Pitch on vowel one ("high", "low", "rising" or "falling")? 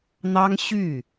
high